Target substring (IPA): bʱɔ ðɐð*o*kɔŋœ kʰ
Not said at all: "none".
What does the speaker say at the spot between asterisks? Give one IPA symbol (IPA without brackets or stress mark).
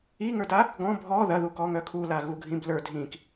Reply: u